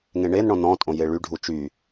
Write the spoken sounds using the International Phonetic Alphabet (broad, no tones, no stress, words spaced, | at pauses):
ŋẽɳenɳɔ̃ nɔ̃tʼõ jeɭyɖʱu t͡ʃy